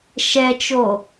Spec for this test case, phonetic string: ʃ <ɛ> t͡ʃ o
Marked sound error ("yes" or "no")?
no